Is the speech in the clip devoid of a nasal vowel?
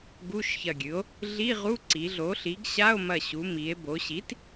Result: yes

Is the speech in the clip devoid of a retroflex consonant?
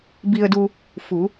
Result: yes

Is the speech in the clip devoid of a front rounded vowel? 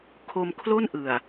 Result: yes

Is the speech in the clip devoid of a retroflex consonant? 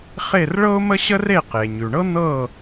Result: no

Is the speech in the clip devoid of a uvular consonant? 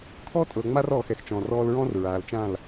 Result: yes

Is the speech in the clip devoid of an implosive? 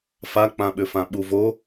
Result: no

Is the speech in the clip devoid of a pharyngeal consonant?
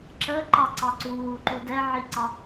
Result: no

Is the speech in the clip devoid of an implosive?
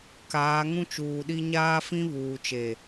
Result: no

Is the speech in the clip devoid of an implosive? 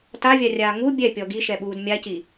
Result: no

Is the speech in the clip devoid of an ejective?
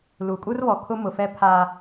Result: no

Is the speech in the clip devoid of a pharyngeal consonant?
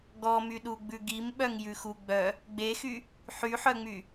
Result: no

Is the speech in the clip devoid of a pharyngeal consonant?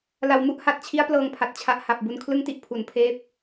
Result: yes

